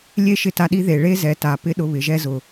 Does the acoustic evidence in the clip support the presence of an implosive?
yes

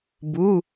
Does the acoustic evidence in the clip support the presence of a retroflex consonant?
no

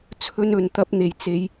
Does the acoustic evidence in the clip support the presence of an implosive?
no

